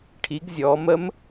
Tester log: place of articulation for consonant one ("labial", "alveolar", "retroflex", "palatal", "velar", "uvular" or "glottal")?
retroflex